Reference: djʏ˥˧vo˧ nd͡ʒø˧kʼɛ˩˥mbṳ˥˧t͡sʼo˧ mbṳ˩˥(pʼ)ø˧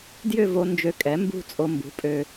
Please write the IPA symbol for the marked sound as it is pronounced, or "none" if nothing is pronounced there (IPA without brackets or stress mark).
pʼ